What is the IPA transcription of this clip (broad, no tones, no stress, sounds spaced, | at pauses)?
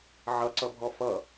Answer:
ʕ ʌ ǀ ʌ bʱ ɔ f ʌ